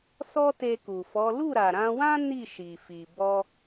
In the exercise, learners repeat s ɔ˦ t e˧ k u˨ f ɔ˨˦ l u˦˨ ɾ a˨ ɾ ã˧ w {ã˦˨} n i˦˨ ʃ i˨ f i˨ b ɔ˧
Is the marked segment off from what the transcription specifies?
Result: yes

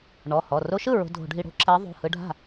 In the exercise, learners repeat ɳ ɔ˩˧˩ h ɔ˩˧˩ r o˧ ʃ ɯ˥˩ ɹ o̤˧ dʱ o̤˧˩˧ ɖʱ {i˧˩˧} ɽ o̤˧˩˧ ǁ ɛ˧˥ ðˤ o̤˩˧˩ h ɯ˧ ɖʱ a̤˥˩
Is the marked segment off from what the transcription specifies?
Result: no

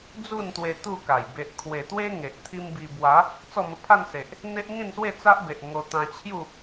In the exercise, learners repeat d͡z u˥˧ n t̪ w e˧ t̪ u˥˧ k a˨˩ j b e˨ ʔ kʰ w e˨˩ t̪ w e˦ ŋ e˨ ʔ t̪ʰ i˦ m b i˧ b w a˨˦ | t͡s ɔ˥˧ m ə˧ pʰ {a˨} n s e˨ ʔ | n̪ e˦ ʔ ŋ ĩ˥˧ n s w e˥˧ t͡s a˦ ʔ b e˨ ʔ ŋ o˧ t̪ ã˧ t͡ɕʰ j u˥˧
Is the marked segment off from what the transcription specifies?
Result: yes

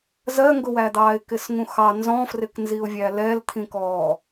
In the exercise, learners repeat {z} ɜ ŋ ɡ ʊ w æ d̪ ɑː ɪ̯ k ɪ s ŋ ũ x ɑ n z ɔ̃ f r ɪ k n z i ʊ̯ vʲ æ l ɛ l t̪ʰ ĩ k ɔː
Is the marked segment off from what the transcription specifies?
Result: no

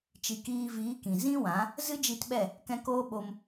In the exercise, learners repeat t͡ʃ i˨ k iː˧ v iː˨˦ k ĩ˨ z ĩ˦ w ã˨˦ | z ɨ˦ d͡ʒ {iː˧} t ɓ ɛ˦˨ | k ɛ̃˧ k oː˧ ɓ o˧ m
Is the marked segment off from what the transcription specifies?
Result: yes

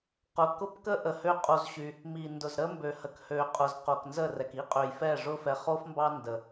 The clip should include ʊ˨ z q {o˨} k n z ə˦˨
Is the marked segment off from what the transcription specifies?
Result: no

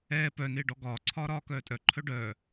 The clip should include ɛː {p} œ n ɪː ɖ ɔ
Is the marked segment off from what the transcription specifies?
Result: no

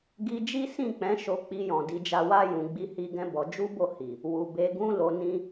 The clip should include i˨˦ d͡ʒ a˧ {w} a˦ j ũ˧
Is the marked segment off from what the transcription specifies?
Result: no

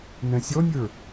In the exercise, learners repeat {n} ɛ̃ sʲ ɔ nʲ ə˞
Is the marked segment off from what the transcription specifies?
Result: no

